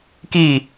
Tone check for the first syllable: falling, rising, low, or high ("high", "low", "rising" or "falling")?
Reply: falling